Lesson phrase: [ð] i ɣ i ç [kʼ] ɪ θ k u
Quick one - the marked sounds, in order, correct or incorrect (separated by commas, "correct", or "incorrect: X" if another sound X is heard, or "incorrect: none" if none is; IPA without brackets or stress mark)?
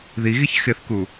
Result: correct, incorrect: x